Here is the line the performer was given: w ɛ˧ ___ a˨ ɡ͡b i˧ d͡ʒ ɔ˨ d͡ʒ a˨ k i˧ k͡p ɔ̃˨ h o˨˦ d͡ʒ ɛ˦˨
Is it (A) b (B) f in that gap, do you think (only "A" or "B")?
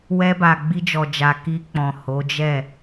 A